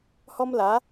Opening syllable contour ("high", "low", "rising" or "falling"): high